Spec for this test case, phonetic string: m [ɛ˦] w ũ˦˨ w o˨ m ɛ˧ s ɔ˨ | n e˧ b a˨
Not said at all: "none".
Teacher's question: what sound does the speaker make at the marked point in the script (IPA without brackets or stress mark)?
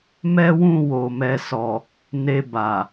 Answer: ɛ˦